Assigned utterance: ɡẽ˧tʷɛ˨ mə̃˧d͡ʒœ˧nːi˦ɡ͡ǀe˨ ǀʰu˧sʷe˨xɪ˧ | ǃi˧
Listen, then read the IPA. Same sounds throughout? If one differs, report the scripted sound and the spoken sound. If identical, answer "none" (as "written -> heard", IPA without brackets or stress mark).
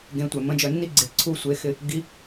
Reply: ǃ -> ɡ